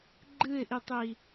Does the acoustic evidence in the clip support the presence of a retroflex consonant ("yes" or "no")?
no